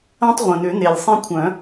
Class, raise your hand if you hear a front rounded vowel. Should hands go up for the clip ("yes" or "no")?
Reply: yes